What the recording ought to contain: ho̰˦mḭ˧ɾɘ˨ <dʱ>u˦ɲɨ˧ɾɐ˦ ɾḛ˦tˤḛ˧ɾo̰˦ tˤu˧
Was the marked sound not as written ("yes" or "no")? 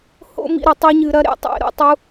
yes